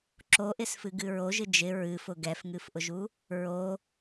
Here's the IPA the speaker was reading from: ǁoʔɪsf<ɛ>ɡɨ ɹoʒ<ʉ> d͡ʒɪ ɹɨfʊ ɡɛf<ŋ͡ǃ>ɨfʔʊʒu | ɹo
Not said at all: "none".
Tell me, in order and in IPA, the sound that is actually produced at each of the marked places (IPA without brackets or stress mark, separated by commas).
ɨ, ɨ, ŋ